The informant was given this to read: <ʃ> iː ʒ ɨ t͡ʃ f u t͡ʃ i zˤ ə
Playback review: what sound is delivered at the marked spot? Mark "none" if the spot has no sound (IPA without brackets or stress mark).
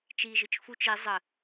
t͡ʃ